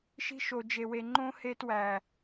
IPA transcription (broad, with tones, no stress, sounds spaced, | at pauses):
ʃ i̤˧ ʃ o˨ d͡ʒ e˨ w e˨ ŋ͡ǃ õ˧ h e˧ t w æ˨